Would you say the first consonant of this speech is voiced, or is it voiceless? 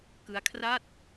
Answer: voiceless